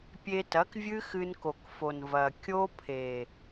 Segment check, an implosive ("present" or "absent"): absent